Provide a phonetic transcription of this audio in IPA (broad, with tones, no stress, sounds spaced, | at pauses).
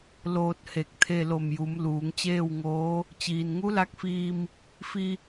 l oː˧ t̚ h e˧˩ k̚ t̪ʰ e˧ l o˧˩ m j u˩˧ m l uː˩˧ ŋ t͡ɕ eː˥˨ w ŋ oː˧˥ | t͡ɕ iː˩ n ŋ u˧˥ l a˧˥ k̚ f iː˧ m | f i˧